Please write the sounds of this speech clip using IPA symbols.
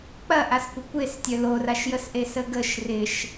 k͡p ɐ ʔ a s kʷ ə kʷ e s tʲ œ l o r a ʃ j ə s ʔ e s ə ɡ ə ʃ r ɪ ʃ

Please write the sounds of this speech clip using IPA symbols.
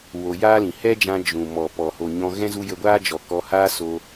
w o˧ j aː˦ l ĩ˨ h ɛ˦ d͡ʒ ã˧ d͡ʒ ũ˨ m ɔ˨ p ɔ˨ h o˨ ɲ ɔ̃˧ ɣ ɛ̃˦ z u˧ j ə˧ ɡʷ aː˦ d͡ʒ ɔ˨ k ɔ˧ h aː˦ s o˧

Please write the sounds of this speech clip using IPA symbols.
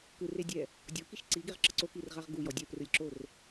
k ɯ r e dʲ ɛ | dʲ o k i ʃ ǀ i ɡ e ʁ ǁ ɤ ǀ o k i r ʁ a ʁ ɡ u j ɔ dʲ ɛ p r ɯ lʲ ǁ o r

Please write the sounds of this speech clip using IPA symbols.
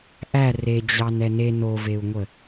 ʔ æ r e d͡ʑ ɑ n ɛ n e n o v e u̯ ŋʷ ə

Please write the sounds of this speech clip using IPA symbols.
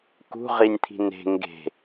k ṳ ʁ i nʲ t̪ʰ i̤ n e̤ ŋ ɡ e̤

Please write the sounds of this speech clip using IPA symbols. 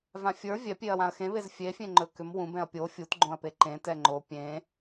v ã fʲ ə˞ vʲ ɛ pʲ e ɐ̯ w ã ɐ̯ x ẽ β e z fʲ e fʲ ẽ ŋ͡ǃ ɵ k ʏ m w ũ b ɛ̃ ɐ̯ pʲ o fʲ u t ɡ͡ǃ õ ɐ̯ p e ǃ ẽ t ɛ ŋ͡ǃ o pʲ ẽ

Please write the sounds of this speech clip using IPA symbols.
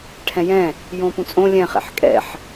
ʈʰ ɛ̃ j ɛ̃ | j õ p ũ t͡sʼ õ lʲ ɛ̃ χ ɛ̰ ħ kʼ ɛ̰ ħ

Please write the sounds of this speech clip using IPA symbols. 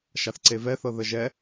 ʃ a θ ǀ e v ɛ θ ɤ ð ə ʒ ɛ

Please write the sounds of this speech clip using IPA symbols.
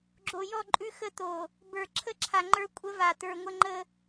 ɡ͡ǁ o˨ j ɔ˦˨ ǃʼ ʉ˦ x ə˦ t̪ o˨ | b ə˞˨ ǁʰ ə˦ ǁʰ a˨ ŋ͡ǃ ə˞˦ kʷʼ ə˦ v a˨ t̪ ə˞˨ ŋʷ ə˦ ŋ͡ǃ ə˦

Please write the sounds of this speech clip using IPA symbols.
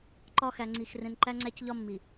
ǃ ɒ˦ x æ˨ ŋ͡ǀ i˨ x r ẽ˨ n ǃ æ˦ ŋ͡ǀ æ˦ c ʎ ɒ˦ mː i˨

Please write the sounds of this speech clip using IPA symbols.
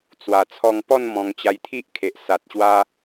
t͡s w a˧ t͡sʰ ɔ˧ ŋ p ɔ˥˧ n m ɔ̃˧ ŋ t͡ɕ a˧ j t̪ʰ i˦ ʔ kʰ e˨ ʔ s a˨ t̚ ɕ w a˧

